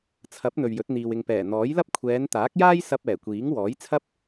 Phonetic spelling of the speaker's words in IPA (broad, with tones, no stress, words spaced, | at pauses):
t͡sʰɐ˨˥p̚ n̪ɵ˨ɥjɵ˨˥t̚n̪iː˨w ɪ˨ŋpɛː˨˩ n̪ɔː˨˥jlɐ˥p̚ kʷʰɛː˨˧nt̪aː˨˥k̚jaː˥j sɐ˧p̚ ɛː˨˩kʷiː˨˥ŋ wɔː˨˥jt͡sʰɐ˥p̚